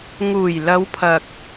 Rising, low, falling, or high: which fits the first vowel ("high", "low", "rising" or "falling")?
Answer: low